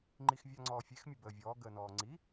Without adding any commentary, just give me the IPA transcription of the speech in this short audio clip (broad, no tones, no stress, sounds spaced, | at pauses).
ŋ͡ǃ i x vʲ a ŋ͡ǀ ɔː fʲ e x mʲ ə b əː vʲ ɔː ɡ əː n ɔː ŋ͡ǀ i